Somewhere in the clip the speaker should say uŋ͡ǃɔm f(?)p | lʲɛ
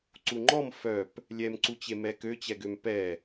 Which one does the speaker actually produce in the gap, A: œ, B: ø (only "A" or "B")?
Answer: A